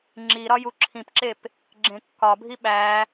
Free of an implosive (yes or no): no